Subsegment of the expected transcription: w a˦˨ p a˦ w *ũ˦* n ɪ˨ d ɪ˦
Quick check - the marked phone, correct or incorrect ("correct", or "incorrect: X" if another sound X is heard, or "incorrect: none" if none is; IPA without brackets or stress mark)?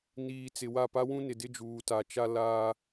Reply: correct